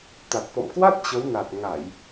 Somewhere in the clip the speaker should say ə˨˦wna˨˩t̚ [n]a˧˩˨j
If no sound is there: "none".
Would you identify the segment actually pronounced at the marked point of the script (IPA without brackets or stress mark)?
ŋ